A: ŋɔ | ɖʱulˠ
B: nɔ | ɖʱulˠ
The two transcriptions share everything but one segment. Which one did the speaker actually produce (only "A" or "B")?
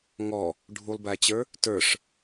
A